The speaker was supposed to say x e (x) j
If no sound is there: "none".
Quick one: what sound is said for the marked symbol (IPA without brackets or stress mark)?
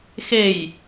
none